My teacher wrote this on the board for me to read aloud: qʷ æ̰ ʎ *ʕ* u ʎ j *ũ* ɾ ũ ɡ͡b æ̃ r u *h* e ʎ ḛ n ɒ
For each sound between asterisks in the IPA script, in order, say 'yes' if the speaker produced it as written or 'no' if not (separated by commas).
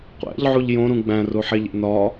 yes, no, no